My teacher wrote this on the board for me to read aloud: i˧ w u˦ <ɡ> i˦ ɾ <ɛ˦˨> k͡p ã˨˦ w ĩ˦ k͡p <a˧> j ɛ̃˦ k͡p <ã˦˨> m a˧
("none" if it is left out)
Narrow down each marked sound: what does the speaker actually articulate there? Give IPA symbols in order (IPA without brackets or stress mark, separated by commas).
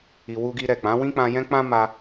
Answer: ɡ, ɛ˦˨, ã˧, ã˦